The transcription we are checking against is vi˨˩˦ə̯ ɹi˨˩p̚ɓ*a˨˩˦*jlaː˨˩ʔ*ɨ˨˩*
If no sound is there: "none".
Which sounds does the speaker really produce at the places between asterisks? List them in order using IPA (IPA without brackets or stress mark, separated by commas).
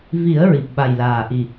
a˨˩, i˨˩